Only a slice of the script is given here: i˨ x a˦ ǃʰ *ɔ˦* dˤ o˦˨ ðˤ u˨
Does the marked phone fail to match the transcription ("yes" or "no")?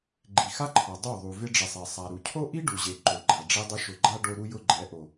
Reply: yes